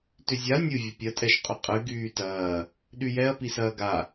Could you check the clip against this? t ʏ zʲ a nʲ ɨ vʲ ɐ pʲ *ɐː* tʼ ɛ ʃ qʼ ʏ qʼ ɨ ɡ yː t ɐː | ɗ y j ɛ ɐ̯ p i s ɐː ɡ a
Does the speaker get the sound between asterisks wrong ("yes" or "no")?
yes